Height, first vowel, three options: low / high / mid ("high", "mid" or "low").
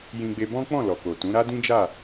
high